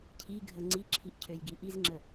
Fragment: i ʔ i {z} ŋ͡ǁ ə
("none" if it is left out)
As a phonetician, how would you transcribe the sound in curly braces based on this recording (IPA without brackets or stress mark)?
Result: z